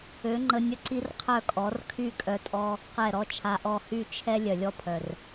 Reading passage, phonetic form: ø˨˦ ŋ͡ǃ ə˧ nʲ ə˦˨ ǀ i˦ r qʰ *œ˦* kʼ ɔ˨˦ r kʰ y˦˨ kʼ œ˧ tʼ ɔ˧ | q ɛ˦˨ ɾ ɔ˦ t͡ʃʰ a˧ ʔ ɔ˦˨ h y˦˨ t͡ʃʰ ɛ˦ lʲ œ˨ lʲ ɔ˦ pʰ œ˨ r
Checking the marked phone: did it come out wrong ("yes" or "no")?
yes